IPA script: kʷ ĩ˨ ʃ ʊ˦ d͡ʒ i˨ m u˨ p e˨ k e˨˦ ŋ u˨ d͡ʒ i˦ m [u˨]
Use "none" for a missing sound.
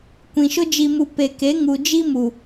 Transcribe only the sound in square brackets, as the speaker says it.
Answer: u˨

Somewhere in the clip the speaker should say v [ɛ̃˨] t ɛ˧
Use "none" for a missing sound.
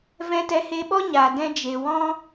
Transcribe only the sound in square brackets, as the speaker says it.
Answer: ɛ̃˧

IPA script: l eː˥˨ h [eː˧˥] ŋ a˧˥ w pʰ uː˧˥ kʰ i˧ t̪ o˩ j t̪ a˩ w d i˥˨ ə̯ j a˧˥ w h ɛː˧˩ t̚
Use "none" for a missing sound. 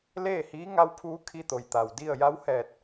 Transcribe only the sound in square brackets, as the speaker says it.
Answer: iː˧˥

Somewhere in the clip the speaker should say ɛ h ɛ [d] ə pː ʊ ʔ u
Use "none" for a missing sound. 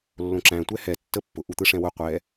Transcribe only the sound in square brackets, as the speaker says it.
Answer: tː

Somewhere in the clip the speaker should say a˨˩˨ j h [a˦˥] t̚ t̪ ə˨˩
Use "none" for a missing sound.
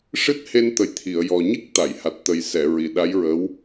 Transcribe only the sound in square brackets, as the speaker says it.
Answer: a˨˩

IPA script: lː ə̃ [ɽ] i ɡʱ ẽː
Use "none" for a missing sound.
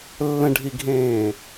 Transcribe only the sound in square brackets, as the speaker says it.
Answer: ɖʱ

